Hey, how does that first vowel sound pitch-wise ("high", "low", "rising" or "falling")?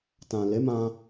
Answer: low